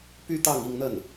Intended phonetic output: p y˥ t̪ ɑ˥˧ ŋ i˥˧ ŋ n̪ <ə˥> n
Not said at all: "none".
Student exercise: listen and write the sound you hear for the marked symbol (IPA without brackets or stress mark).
ə˥˩